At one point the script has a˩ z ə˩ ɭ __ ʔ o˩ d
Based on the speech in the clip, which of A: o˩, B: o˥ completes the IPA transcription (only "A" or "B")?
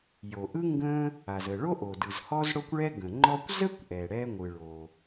B